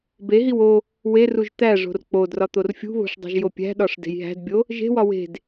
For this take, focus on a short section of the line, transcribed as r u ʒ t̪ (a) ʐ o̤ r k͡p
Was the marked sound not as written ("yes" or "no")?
yes